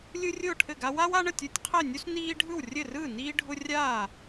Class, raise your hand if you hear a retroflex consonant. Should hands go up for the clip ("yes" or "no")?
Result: yes